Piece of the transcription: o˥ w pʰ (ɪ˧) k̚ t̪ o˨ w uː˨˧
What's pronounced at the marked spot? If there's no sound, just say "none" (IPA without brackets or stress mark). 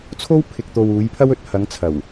ɪ˨